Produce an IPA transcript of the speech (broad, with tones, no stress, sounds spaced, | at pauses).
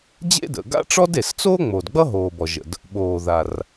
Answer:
d͡ʑ ḛ˥ d ə̰˩ ɡ a̰˥ ʈ͡ʂ ɔ˥ d e˩ s t͡s oː˥ ŋ͡m o˩ d ɡ͡b ʌ˥ ɦ oː˩ b ɔ˩ ʒ ə̰˩ d | ɓ oː˩ ð a˩ r